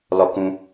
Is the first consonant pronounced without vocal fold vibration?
no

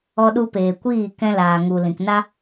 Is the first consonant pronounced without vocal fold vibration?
no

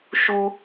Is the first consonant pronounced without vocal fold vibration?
yes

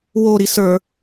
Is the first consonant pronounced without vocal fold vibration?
no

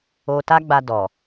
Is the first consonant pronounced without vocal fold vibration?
yes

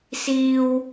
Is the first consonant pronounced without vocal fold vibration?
yes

